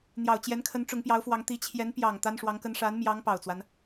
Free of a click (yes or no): yes